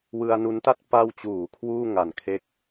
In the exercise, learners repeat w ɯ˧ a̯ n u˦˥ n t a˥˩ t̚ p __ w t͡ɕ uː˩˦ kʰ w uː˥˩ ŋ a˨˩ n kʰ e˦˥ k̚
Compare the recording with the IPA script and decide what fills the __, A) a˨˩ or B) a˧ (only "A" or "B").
B